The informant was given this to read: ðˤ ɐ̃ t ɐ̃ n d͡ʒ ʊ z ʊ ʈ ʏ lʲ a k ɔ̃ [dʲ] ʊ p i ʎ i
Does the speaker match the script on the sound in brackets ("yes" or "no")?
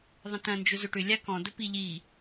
no